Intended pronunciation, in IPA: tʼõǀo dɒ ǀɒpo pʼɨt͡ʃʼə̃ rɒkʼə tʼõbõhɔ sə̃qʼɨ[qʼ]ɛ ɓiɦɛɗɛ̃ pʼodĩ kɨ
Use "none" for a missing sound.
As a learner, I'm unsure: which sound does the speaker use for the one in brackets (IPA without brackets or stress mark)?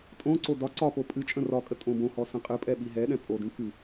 pʼ